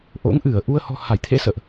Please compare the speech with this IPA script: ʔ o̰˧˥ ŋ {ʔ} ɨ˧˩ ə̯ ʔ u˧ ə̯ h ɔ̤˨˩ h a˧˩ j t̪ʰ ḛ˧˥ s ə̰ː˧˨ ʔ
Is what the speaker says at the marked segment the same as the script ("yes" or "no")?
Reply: yes